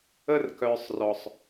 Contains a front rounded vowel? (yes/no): yes